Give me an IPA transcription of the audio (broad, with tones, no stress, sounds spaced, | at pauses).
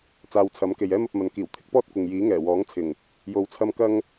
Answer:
t͡s aː˨˧ w t͡sʰ ɐ˨˥ m k e˨ j ɛː˥ m ɐ˧ p̚ m ɐ˨ n k iː˨˩ w t̪ʰ ɪ˥ k̚ p ɔː˥ t̚ kʷ ɪ˨ ŋ j iː˨˥ ŋ ɛː˨˩ w ɔː˨˥ ŋ t͡sʰ ɪ˨˩ ŋ | j o˧ w t͡sʰ ɐ˥ m k ɐ˥ ŋ